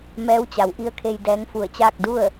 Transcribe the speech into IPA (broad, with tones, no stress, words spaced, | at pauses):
mɛː˧˥wt͡ɕa˩˧wʔi˧˥ə̯kʰe˧j dɛː˧˥ŋfu˧˩ə̯t͡ɕaː˥˨k̚ du˥˨ə̯